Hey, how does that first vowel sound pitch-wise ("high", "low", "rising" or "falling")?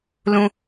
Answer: high